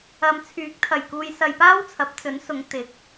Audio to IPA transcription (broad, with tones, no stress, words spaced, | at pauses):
ɐ˨mt͡sʰyː˨˥k̚t̪ʰɐ˨˩j kuː˧jsɐ˧jpaː˥wt͡sʰɐ˨˥p̚ t͡sɵ˨˥nsʊ˨˧ŋ t̪ɪ˨˥k̚